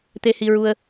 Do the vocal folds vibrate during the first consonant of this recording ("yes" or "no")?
no